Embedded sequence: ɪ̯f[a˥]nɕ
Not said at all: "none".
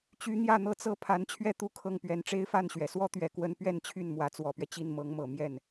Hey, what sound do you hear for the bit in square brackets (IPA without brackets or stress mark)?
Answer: a˥˩